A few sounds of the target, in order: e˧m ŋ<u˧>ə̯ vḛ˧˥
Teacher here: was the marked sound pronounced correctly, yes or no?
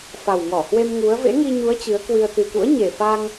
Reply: no